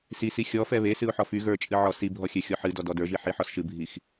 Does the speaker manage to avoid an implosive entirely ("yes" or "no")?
yes